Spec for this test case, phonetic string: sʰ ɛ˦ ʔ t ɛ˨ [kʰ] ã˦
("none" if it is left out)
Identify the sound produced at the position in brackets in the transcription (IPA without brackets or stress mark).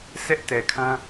kʰ